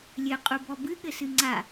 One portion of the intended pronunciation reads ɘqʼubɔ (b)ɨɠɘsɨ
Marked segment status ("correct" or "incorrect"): correct